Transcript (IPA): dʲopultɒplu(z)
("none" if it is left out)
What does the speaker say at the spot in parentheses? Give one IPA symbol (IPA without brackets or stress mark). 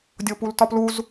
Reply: z